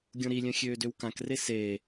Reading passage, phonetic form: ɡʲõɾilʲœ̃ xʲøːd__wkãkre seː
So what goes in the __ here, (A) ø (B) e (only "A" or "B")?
A